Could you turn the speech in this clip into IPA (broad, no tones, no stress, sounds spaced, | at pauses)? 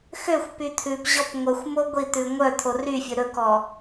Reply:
x ø xʷ p y t̪ʰ ʉ p ʑ ɔ p ŋʷ œ xʷ m o ɡʷ i t̪ ʉ ŋʷ œ t̪ʰ o r y fʲ ɵ ɾ ɵ k ɔ